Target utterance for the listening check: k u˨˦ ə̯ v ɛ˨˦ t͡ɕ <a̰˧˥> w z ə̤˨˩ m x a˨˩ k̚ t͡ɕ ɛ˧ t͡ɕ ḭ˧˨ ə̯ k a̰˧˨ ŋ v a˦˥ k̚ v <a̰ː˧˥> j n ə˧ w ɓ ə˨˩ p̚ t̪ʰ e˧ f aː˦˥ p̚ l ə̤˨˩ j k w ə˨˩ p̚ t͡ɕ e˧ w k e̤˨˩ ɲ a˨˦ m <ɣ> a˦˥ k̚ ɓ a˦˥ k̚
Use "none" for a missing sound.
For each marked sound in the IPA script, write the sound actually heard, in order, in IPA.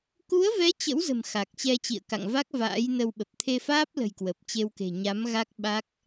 ə̰˧˥, a̰ː˧˥, ɣ

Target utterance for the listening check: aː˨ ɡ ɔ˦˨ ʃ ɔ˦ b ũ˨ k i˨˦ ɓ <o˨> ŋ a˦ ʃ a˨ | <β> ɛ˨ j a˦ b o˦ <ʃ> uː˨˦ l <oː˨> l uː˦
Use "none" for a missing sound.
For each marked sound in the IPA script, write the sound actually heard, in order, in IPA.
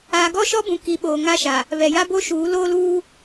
oː˨, β, ʃ, oː˦

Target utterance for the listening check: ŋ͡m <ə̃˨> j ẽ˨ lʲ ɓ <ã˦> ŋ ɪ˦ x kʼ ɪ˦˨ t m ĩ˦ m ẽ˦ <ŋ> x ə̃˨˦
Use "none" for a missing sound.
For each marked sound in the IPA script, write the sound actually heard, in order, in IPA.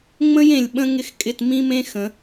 ə̃˦, ə̃˦, none

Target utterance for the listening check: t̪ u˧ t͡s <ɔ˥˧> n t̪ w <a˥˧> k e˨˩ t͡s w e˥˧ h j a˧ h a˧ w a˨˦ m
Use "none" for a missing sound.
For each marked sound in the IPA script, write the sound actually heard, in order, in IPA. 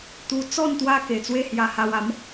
ɔ˥˧, a˦

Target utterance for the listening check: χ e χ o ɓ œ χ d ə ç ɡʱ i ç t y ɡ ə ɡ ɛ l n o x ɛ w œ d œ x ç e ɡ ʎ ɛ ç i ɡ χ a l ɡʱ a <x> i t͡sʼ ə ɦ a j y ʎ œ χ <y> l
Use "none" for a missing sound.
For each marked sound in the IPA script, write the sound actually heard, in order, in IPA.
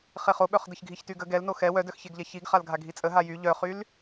ɡʱ, y

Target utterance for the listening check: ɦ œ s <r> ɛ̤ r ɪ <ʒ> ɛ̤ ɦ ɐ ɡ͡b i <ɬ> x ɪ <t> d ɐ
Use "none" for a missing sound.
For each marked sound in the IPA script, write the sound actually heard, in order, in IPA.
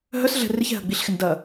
ɮ, ç, ɬ, n

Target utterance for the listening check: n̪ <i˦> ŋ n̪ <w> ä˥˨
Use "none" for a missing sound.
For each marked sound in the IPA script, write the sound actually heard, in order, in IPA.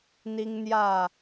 i˦, j

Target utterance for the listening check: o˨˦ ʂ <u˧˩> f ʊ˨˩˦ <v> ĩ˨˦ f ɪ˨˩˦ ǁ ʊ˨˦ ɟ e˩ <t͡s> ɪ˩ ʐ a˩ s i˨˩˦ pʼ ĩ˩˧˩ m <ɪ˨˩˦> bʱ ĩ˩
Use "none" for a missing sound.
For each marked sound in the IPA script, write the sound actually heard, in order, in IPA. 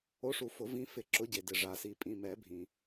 u˨˩˦, v, d, ɛ˨˩˦

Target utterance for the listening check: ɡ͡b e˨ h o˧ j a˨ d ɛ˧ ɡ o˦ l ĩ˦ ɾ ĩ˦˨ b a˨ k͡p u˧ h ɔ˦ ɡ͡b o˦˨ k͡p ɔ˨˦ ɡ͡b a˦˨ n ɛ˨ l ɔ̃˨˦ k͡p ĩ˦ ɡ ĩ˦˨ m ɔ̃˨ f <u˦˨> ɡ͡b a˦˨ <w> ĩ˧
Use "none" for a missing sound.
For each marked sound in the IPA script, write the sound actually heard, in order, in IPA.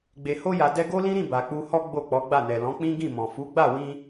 u˨˦, w

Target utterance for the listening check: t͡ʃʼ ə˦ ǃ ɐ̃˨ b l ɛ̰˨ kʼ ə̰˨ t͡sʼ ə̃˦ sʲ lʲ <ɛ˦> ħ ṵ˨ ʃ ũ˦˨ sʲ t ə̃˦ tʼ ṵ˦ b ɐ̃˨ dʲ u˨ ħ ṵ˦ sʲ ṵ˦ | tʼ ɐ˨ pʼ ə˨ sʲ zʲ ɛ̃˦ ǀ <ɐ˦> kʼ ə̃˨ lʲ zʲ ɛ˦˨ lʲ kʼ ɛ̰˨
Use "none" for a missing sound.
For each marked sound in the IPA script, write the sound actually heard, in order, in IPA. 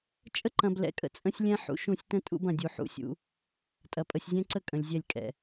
ɛ̃˦, ə˦

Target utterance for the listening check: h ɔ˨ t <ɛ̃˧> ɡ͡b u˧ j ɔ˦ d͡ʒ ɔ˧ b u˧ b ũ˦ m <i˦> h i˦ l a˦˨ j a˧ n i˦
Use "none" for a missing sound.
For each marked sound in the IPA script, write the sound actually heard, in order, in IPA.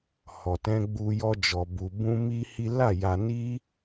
ɛ̃˧, i˦

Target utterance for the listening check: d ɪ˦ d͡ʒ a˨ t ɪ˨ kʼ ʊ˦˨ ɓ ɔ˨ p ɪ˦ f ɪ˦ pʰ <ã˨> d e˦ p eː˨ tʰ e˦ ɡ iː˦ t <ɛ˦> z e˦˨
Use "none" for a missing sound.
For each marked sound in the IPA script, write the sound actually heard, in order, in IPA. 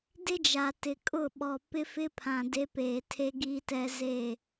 ã˨, ɛ˦

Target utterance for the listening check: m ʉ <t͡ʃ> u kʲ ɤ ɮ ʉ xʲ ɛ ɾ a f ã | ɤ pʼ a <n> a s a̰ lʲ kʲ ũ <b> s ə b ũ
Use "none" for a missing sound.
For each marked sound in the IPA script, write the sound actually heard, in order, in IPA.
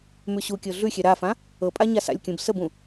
ɕ, ɲ, b

